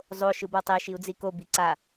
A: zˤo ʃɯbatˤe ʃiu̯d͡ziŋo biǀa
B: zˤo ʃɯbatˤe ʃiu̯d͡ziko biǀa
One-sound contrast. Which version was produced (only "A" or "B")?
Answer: B